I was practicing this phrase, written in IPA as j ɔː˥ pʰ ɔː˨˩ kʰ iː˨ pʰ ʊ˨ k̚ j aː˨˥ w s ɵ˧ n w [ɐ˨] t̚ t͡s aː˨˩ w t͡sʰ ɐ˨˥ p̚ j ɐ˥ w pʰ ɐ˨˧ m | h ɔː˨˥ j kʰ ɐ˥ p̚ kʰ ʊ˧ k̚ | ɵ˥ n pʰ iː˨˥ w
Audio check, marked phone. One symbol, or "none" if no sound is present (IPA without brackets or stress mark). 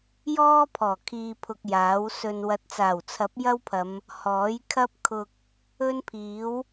ɐ˨